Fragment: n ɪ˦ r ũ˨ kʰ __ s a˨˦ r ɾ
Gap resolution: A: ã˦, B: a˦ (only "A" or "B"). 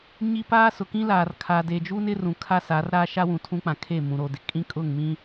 B